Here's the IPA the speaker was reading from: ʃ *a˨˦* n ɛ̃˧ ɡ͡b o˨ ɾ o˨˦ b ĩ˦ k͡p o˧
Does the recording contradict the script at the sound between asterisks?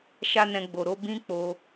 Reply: yes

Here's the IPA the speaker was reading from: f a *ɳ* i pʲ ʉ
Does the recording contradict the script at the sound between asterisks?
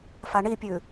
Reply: no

